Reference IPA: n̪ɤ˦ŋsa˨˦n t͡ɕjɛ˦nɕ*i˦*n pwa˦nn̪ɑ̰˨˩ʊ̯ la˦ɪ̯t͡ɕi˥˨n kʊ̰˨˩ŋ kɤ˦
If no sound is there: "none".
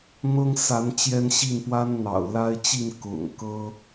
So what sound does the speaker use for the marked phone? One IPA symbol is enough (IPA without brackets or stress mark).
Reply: i˥˨